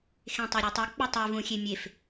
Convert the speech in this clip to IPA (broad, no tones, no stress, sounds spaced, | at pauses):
x ẽ tˤ e ɾʲ u tˤ i k͡p ɨ tˤ e v ũ xʲ e mʲ e f